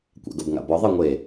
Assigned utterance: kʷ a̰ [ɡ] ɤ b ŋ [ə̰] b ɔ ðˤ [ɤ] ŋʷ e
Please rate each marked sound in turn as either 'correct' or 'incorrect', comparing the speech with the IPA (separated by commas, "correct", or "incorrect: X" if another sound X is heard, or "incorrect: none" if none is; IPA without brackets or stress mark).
correct, incorrect: a̰, correct